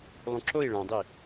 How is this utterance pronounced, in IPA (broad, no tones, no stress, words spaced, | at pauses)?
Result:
lˠũǁoi̯ ɭãdˤi